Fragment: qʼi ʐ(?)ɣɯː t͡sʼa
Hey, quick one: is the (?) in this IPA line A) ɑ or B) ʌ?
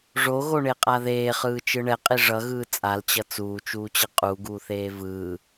B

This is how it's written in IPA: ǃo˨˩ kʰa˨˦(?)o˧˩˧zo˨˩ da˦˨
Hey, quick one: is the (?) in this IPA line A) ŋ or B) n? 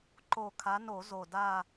B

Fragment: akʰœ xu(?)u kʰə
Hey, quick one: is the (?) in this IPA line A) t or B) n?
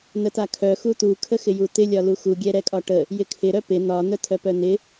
A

